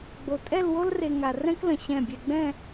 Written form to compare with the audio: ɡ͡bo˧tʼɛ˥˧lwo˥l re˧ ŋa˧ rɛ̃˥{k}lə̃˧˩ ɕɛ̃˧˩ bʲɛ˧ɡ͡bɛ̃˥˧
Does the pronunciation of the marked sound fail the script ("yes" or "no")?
no